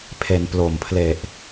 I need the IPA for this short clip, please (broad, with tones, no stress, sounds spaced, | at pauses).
pʰ e˩˦ n p l o˨˩ m pʰ l e˨˩ ʔ